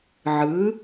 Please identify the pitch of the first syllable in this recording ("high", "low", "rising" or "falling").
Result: rising